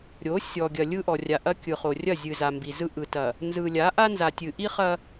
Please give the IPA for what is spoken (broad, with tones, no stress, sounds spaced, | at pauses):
ɾʲ o˨˦ sʲ ɔ˨ ɡʲ ɐ˨ lʲ ɯ˦ ʔ ɔ˨ rʲ a˨ ʔ ɐ˦ kʲ ɯ˨ χ o˨ rʲ ɐ˦˨ zʲ ɨ˨ z a˨ m b i˨ z ɯ˦ ʔ ɯ˨ t ɐ˨ | n z ɯ˨ lʲ a˨˦ ʔ a˦ n z a˨ tʲ ɨ˨ ʔ i˦ χ ɐ˦